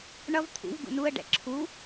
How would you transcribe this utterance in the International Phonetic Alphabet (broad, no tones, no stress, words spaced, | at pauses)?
ɳʌv t̪ʰṵv ɡṵnuə̯ ɖɛ̰ǁʰu